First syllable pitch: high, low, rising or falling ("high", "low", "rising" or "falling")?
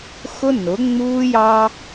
high